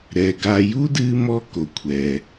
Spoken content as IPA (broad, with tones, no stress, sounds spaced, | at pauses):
ɾ ɛ˩ ɡ a˨ j u˥ d ɨː˦ m ɔ˦ k o˩ kʷʰ ɛː˩